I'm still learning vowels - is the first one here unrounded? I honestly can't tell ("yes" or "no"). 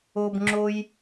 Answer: no